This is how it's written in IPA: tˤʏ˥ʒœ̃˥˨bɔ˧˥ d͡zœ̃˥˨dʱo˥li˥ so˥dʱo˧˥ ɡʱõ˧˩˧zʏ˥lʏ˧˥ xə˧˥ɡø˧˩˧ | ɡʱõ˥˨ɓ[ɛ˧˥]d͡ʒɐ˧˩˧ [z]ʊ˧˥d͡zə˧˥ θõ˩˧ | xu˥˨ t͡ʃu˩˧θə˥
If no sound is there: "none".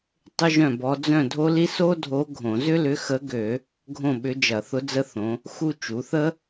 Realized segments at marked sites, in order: ʏ˧˥, θ

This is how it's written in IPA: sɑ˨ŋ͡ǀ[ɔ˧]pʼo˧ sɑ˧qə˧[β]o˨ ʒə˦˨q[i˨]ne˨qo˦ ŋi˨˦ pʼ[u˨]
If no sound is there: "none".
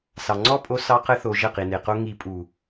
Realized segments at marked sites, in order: ɔ˦, θ, i˨, u˨

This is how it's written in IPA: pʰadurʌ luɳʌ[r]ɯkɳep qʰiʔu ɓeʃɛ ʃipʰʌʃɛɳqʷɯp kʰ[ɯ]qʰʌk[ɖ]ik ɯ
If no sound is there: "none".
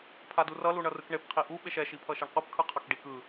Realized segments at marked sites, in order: r, ɯ, ɖ

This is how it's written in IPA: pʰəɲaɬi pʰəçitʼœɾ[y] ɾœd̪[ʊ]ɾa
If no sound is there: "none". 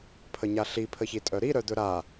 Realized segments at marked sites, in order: i, ɵ

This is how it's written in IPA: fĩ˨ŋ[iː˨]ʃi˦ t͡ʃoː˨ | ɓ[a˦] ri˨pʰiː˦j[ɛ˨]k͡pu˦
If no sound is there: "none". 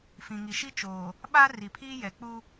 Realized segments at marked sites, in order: i˨, a˦, ɛ˨

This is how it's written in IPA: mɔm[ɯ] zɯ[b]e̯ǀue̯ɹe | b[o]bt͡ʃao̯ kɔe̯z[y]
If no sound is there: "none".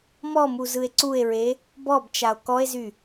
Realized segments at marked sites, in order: u, none, ɔ, y

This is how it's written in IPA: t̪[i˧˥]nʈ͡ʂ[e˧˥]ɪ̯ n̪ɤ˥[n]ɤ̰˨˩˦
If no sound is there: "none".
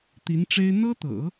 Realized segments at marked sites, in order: i˧˥, e˥, t̪

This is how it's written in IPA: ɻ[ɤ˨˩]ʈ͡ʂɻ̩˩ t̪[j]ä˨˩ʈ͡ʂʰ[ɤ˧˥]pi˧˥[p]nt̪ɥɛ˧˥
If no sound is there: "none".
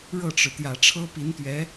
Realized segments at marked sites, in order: ɤ˥˩, j, ɤ˥, none

